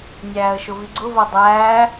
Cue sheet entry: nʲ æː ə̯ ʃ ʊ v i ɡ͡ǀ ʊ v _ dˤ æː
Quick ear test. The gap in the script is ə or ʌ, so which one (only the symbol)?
ʌ